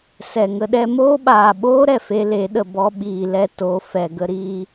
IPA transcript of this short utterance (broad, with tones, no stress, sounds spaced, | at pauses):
s ɛ˨ ŋ ə˧ ɗ ɛ˦ m oː˦ ɓ aː˨ ɓ oː˦ ɾ ɛ˨ f e˧ l e˨˦ ɗ ə˨ b ɔ˧ ɓ iː˨ l ɛ˧ t o˨˦ f ɛ˨ ɡ ə˧ ɾ iː˧